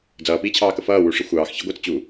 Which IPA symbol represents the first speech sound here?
d͡z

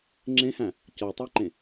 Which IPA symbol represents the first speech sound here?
ŋ͡ǁ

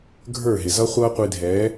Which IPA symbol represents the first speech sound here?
ɡʱ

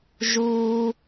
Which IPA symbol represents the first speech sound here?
ʒ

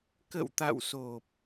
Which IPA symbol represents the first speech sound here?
k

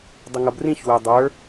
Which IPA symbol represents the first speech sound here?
dˤ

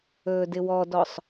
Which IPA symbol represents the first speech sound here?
ɵː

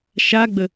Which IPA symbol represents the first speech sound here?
ʃ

